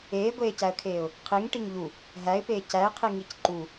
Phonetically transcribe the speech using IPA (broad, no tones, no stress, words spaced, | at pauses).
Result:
eːɡʷeːcæə̯kʰeːʊ̯ | qʰiŋʈiŋ ʎu | ɦæɪ̯peː cæɪ̯qʰiŋic ǃu